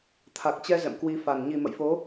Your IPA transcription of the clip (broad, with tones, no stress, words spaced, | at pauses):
t̪ʰa˨˩k̚t͡ɕɛ˧ zɛ̰˧˨mkwi˧fa˨˩n ɲi˨˩mə̰˧˨jfo˨˦